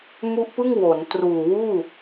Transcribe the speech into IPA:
m u˦˥ ʔ p ɯ˥˩ ŋ w o˩˦ n t r uː˨˩ w uː˥˩

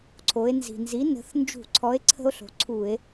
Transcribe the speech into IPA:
ǀʰ o˩˧ e̯ n z i̤˩ n z i˨˥ n ə̤˩˧ θ n d͡ʒ ṳ˧˩˧ ǀʰ ɔ˨˥ e̯ ǀʰ ə̤˦ o̯ ɬ o̤˩˧ ǀʰ u˧˩˧ e̯

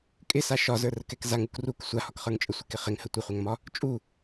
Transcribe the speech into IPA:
kʼ ɪ s a ʃ ɒ z ə˞ r ə k ɛ k z a ŋ u k r u k sʷ a h ɒ k χ ə˞ ŋ t͡ʃʼ ə sʷ ɪ k ɪ χ ɪ ŋ h ə tʷ ə χʷ ɛ ŋ m ɒ | t͡ʃʼ u

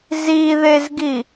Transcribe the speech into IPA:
z i ð e z ɡ i

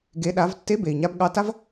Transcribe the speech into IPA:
ɡ e˩˧ ɗ a˩˧ v tː e˧˥ b e˩ i̯ ɲ a˧ b ɠ ɑ˧˥ t a˥ v

